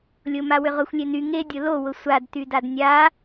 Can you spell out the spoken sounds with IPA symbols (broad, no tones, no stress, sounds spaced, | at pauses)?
lʲ ʊ m a w ʏ ʁ ʊ xʷ lʲ e n y ŋ e dʲ ʊ l o w ʊ sʷ a d t y d a d nʲ a